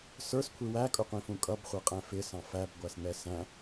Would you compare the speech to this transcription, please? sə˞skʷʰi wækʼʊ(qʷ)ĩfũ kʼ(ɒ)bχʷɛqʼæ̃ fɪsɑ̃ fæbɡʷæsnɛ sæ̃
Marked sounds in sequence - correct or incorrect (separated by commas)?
correct, incorrect